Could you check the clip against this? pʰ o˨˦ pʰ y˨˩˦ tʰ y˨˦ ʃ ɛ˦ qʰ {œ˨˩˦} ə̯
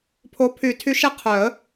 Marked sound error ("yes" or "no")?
no